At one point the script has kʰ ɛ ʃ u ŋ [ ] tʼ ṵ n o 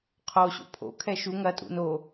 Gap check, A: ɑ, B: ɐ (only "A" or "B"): B